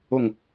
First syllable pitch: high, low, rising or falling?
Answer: falling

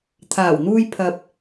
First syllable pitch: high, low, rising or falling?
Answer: low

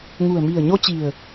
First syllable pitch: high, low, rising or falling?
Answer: low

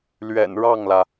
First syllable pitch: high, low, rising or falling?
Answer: low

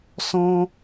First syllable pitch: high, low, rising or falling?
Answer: high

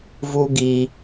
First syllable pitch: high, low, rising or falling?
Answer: high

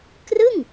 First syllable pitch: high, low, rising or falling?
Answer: falling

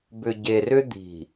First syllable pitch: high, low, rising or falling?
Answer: low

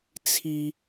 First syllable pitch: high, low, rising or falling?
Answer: high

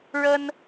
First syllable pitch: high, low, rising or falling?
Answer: high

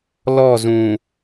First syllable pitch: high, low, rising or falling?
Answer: falling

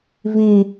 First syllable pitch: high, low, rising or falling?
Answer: low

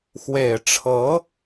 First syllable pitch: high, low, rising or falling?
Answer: low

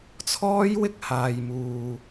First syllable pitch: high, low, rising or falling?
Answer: high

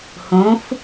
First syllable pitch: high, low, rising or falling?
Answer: rising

